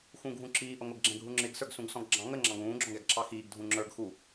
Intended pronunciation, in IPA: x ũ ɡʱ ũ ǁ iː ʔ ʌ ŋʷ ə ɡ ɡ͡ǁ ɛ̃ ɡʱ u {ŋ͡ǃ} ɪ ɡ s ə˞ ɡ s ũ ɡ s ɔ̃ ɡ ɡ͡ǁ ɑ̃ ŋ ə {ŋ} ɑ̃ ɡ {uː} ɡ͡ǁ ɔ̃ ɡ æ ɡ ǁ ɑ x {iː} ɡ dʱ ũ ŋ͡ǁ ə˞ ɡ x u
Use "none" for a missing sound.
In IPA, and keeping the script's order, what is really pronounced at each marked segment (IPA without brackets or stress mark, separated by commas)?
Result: ŋ͡ǁ, ŋ͡ǁ, ũː, iː